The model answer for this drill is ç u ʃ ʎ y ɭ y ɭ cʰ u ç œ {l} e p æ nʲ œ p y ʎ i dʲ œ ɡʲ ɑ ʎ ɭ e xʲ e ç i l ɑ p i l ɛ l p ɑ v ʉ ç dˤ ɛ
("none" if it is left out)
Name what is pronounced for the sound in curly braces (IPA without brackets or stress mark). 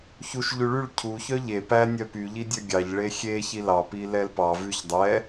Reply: ʎ